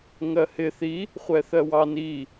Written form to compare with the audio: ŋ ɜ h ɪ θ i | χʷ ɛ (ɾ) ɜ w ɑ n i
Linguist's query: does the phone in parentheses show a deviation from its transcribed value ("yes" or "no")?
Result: yes